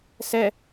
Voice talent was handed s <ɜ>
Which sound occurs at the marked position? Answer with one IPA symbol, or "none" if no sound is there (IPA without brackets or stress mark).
ɛ